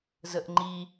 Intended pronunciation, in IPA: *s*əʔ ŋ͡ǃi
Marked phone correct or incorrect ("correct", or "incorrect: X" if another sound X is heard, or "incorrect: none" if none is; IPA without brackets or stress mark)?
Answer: incorrect: z